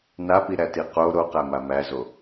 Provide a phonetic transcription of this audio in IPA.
n a p i ɾ æ t i q o ɾ o q æ m a m æ z o

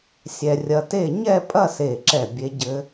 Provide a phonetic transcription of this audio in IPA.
sʲ ɛ˧ rʲ ɐ˧ t e˥˧ ɲ ɛ˥˧ pʼ ɐ˥˧ s e˧˩ ǁ ɛ˧˩ bʲ e˦˥ ɟ ɘ˦˥

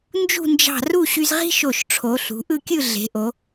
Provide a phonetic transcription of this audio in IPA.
n d͡ʒ ṳ˥˧ n d͡ʒ ɑ̤˧˩ r u˥˧ ɕ y˧ z ʁ i̤˥ ʃ o˧˩ ʃ ʈ͡ʂʰ o˩˧ ɬ ṳ˩˧ ʔ ɯ˥˧ kʲ ɯ˥˧ ɮ e̤˩˧ ʔ o˩˧

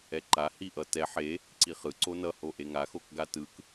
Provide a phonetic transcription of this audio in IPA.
ɛ ǃ a h i ʔ ʌ t ɛ ħ e | ǀ i χ ɯ ǀ o n ʌ h o ʔ e ŋ a x o k ɡ a t ɯ k

